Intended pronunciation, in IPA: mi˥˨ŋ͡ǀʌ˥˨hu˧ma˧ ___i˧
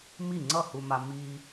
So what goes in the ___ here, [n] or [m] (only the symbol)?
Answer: m